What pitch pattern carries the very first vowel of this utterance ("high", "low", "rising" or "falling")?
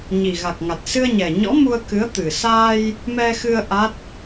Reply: low